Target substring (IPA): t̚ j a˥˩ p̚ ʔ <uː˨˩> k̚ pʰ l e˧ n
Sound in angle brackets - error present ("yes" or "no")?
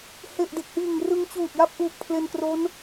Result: no